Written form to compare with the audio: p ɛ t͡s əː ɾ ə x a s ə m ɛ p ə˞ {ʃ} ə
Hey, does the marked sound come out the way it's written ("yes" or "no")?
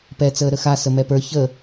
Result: no